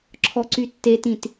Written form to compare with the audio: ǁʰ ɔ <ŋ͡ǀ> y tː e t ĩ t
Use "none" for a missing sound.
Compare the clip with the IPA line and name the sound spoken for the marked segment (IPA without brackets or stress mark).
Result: ǀ